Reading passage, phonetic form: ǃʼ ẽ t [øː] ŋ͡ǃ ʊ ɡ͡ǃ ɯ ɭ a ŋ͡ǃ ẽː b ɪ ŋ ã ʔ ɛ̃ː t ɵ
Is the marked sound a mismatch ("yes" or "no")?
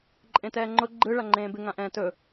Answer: yes